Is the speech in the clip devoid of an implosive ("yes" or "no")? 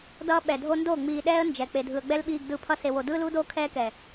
no